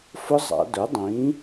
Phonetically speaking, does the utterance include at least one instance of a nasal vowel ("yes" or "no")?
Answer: yes